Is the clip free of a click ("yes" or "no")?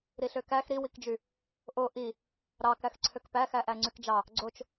no